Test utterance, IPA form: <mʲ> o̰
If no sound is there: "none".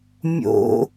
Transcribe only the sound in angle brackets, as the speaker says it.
mʲ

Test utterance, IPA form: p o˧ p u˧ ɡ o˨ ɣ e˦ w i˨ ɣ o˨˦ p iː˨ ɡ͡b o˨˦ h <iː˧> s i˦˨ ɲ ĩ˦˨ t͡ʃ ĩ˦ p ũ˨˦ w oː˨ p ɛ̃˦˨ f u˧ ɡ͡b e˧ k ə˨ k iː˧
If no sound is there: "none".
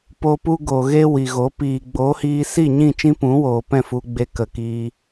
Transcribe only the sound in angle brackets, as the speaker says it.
iː˧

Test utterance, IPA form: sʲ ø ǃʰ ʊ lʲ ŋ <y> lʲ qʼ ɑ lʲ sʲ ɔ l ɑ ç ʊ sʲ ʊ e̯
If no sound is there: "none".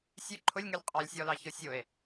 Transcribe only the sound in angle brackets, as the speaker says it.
y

